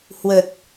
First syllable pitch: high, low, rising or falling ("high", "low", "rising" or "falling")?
low